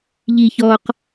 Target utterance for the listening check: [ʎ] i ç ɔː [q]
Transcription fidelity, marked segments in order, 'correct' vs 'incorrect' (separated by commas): correct, correct